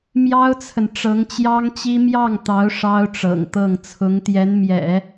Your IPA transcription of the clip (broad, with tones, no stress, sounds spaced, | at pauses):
m j ɑ˥ ʊ̯ t͡sʰ ə˨ n ʈ͡ʂ ɤ˧˥ ŋ t͡ɕ j ɑ˥ ŋ t͡ɕ i˥ m j ɑ˥˩ ŋ t̪ ɑ˧˥ ʊ̯ ʂ ɑ˥ ʊ̯ ʈ͡ʂ ɤ̰˨˩ ŋ t̪ ɤ˥˩ ŋ t͡sʰ ʊ˧˥ ŋ t̪ j ɛ˧˥ n m j ɛ̰˨˩˦